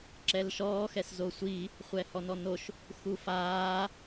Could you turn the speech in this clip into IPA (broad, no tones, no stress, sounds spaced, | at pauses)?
ǁ ɛ l ʃ ɔː x ɛ s z o sʷ i | χʷ ɛ h ɔ n ɔ n o ʃ | x u f aː